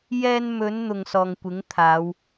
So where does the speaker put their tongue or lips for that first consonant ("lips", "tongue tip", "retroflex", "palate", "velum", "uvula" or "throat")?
palate